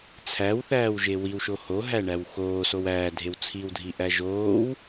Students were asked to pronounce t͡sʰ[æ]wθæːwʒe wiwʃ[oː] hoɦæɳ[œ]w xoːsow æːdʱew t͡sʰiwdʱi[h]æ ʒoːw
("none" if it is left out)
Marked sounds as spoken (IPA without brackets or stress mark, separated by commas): æ, o, æ, ʔ